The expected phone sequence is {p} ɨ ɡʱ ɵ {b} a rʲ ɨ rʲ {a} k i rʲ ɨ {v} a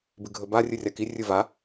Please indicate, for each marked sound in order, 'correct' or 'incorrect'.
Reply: incorrect: b, correct, correct, correct

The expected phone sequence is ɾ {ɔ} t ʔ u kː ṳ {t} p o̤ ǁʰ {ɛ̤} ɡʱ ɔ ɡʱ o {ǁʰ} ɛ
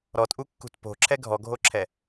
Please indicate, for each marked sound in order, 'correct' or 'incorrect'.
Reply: correct, correct, incorrect: ɛ, correct

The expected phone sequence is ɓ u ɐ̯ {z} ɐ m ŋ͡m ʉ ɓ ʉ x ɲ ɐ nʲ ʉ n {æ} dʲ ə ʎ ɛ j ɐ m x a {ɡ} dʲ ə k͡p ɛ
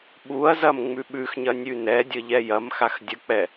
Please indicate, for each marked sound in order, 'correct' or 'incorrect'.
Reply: correct, incorrect: ɛ, incorrect: x

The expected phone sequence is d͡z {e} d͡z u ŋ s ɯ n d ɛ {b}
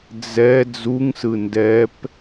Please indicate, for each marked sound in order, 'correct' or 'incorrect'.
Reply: incorrect: ɛ, incorrect: p

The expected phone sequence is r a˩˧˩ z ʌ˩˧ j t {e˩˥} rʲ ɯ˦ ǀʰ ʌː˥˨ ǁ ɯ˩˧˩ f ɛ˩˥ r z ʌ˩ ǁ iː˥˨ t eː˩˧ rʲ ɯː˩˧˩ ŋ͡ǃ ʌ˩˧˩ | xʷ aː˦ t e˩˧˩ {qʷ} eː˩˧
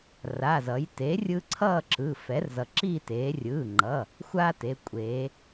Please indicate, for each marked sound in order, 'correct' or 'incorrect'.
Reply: correct, incorrect: kʷʼ

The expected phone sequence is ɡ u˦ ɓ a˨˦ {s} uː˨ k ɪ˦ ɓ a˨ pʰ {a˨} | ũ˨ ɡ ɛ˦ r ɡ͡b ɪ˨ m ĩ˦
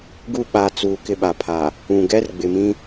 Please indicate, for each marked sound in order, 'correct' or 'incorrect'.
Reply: incorrect: t͡s, correct

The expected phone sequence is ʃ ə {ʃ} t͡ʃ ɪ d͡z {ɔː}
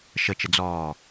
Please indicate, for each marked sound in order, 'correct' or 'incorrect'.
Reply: incorrect: none, correct

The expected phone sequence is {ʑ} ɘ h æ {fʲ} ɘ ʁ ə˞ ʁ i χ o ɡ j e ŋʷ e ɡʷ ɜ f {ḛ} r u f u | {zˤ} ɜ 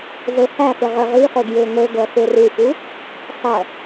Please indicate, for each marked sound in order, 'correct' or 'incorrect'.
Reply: incorrect: z, incorrect: f, incorrect: e, incorrect: sˤ

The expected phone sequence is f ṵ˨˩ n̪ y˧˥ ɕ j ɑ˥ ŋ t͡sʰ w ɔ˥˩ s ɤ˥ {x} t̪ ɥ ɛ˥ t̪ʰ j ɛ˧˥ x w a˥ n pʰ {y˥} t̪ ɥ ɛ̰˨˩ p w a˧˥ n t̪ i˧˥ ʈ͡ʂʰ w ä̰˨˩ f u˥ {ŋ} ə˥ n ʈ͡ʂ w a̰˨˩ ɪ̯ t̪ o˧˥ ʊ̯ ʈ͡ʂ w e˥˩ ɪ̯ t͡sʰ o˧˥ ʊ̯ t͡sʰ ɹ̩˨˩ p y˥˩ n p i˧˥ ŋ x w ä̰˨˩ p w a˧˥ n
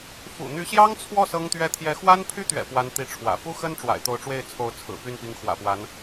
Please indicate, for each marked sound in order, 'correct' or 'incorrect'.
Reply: incorrect: ŋ, correct, incorrect: x

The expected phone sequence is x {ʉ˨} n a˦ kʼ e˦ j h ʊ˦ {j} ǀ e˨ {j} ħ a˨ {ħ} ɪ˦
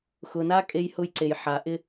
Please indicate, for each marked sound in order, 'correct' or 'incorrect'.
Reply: incorrect: ʊ˨, correct, correct, incorrect: ʔ

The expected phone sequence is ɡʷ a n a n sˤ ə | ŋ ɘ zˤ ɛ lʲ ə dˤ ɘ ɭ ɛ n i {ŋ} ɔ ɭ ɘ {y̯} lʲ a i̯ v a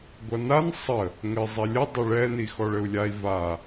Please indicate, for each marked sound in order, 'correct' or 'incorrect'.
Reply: incorrect: x, incorrect: u̯

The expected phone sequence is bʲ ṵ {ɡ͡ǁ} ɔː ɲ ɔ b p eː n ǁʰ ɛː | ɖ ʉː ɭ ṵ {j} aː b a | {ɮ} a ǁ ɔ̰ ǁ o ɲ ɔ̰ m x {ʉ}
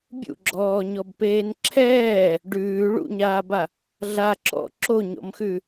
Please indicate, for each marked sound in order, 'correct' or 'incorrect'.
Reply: correct, incorrect: ɲ, correct, correct

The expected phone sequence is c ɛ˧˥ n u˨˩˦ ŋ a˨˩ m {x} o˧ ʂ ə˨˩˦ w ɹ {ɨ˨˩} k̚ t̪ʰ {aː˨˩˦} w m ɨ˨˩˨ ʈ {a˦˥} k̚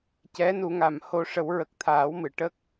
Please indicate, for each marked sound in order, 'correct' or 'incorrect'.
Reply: incorrect: h, incorrect: ə˨˩, correct, incorrect: ə˦˥

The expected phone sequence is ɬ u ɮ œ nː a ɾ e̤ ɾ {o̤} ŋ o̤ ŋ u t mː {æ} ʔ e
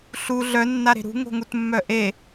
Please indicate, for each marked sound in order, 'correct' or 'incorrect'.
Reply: incorrect: ṳ, incorrect: œ

